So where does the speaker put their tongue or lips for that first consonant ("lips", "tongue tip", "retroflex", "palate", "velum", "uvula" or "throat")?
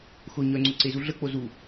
velum